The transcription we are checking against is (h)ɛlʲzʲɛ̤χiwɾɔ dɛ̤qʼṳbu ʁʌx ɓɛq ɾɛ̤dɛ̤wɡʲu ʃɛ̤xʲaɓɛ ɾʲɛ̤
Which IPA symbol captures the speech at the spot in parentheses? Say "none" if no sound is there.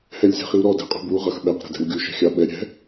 h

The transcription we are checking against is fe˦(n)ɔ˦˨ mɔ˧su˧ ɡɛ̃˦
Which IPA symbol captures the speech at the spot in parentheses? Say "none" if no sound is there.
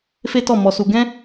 t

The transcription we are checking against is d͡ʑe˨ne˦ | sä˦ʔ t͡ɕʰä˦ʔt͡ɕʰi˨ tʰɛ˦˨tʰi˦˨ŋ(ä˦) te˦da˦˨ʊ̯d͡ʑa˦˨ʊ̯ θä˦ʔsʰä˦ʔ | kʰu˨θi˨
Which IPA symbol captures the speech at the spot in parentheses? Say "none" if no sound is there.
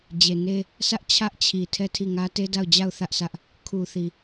ä˦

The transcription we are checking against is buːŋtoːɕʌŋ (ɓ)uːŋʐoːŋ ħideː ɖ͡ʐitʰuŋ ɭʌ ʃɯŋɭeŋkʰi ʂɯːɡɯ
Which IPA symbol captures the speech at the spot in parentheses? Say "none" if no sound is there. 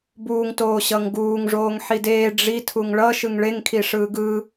ɡ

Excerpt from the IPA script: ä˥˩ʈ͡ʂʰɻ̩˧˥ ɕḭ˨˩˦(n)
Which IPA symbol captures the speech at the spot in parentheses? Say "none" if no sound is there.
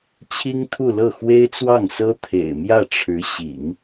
ŋ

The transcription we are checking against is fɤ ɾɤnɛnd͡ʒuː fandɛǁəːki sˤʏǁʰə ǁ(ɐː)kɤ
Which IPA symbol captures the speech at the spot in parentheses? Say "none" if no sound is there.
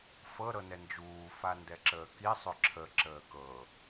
əː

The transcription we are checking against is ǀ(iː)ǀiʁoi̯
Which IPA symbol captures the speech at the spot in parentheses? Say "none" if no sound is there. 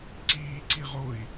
iː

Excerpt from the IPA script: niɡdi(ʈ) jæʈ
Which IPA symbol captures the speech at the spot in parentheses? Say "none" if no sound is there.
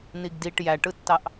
ʈ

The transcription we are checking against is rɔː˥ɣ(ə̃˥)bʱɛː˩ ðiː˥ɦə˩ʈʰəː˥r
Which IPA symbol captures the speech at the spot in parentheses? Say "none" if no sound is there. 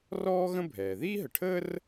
ə̃˥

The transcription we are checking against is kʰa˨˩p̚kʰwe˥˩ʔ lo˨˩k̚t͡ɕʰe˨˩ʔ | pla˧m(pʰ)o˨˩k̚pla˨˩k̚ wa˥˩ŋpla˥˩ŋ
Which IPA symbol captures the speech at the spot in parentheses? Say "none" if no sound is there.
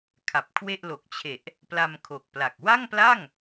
kʰ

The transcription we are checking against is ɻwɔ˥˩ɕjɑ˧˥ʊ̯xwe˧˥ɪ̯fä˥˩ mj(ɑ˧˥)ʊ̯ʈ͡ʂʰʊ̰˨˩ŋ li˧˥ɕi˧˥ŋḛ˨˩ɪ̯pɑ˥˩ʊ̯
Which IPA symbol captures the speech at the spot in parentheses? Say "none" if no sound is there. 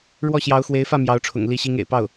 ɑ˧˥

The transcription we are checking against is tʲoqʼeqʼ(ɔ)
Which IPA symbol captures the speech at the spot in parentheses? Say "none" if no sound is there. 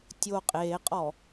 ɔ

